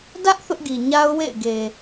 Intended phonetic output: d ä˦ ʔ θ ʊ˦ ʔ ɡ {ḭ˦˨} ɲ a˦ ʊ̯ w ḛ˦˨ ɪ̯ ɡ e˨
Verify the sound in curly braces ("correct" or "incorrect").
incorrect